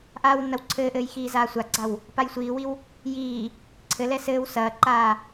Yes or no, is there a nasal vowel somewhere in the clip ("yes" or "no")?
no